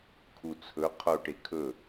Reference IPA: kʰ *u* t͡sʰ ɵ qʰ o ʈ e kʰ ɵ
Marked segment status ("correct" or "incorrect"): correct